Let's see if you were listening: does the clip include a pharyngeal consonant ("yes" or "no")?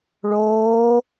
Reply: no